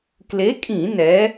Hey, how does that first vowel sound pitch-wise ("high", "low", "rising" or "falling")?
rising